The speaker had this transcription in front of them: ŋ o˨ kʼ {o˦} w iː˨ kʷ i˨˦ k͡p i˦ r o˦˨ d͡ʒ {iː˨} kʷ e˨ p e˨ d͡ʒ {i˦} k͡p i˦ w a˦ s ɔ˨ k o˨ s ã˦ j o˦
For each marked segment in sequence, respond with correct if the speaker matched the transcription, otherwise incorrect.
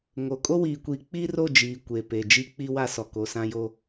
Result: correct, correct, correct

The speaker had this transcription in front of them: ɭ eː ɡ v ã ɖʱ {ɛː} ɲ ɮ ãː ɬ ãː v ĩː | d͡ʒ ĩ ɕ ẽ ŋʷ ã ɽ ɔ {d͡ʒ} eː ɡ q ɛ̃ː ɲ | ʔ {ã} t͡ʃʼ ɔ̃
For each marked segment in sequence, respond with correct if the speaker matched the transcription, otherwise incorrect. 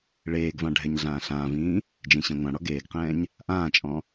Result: incorrect: ɛ, incorrect: ɡ, incorrect: ãː

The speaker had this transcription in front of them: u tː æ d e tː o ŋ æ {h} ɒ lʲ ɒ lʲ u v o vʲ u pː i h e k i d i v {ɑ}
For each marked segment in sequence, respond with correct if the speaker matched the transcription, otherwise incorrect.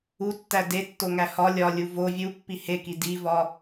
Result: correct, incorrect: ɒ

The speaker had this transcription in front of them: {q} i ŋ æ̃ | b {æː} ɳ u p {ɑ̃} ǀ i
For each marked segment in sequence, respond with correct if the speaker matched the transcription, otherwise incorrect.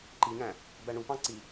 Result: incorrect: ǃ, incorrect: æ, correct

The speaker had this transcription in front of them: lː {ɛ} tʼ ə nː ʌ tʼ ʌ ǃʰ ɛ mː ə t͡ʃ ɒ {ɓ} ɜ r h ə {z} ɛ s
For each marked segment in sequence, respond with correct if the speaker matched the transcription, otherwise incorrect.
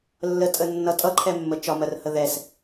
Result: incorrect: ə, incorrect: m, incorrect: ð

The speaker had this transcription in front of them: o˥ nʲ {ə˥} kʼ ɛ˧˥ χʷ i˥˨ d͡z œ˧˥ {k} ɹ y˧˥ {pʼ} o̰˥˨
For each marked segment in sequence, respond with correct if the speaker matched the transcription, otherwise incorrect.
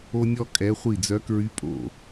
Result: incorrect: ɔ˥, correct, correct

